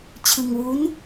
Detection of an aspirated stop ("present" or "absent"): present